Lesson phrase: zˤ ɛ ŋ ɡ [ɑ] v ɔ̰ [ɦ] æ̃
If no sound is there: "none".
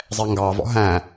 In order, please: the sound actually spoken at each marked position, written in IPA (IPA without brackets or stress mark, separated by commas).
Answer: ɑ, ɦ